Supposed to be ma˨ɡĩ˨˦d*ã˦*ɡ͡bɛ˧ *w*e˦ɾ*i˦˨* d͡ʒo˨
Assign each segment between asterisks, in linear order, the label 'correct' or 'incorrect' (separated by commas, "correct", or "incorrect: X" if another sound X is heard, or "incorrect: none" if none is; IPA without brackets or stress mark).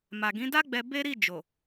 incorrect: a˦, incorrect: b, correct